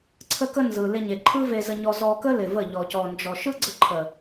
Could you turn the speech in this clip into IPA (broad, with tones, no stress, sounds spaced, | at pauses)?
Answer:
ǀʰ ə˧ k ə˧ n z ɯ˨ l ɪ˧ ɲ e˨ ǃʰ ɯ˦ v e˧ z ə˧ ɲ ɔ˧ z ɔ˧ k ə˦ l ɪ˨ v ə˦˨ ʎ ɔ˨ c ɔ˨ n d͡ʒ ɔ˨ ʃ ɯ˦ ɡ͡ǀ ə˧ ǃʰ ə˨